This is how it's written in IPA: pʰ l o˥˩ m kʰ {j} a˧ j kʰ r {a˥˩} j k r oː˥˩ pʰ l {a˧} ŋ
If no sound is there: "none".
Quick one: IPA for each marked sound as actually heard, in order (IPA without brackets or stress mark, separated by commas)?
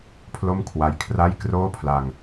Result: w, a˥˩, a˧